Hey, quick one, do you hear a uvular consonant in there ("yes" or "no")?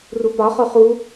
yes